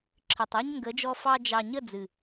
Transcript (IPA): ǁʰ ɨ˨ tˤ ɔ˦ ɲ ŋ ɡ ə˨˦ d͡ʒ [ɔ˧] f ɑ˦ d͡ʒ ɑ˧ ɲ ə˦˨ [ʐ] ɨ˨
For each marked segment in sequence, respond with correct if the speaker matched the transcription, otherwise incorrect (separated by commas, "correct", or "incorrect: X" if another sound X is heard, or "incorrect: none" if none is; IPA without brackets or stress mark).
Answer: correct, incorrect: d͡z